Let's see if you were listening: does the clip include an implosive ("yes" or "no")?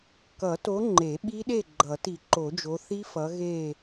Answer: yes